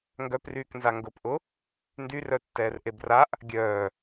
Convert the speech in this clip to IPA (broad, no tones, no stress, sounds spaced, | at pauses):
ŋ ɡ œ p r yː k n z a ŋ ɡ ʊ p ʔ ʊ | n d y r œ tː ɛː r ʔ e b r a ʔ | ɡʲ œː